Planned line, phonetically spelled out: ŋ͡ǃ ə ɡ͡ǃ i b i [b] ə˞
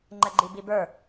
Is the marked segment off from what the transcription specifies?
no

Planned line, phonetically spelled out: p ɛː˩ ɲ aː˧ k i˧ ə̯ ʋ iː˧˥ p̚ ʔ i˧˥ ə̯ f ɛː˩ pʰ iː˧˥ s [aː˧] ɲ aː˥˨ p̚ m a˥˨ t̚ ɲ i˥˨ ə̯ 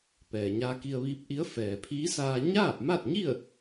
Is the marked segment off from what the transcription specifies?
no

